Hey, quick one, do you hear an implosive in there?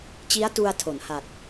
no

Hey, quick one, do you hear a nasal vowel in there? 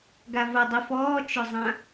yes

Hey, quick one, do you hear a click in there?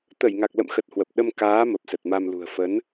no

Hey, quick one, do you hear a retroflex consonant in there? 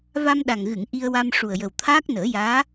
yes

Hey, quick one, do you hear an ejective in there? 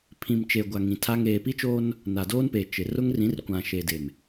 no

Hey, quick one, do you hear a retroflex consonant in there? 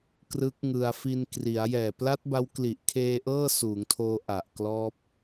no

